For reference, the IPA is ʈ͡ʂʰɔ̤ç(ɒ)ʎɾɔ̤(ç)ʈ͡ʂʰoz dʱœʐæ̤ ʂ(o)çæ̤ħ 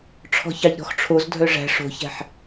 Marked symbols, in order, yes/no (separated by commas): no, no, no